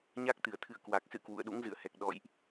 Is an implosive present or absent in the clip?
present